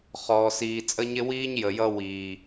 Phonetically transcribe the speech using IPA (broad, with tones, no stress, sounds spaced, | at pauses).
χ ɔː˨ s iː˨ t͡sʼ ə˦ ɲ ɪ˦ w iː˦ ɲ j ə˨ j ʌ˦ w iː˨